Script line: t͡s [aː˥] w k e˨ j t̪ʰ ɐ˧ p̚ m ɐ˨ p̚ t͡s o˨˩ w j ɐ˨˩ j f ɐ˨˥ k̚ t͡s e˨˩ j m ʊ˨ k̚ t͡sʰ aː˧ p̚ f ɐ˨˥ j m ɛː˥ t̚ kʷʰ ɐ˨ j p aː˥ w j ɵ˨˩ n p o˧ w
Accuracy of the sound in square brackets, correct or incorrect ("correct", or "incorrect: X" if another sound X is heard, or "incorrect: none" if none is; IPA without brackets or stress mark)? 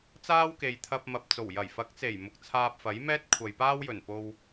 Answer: correct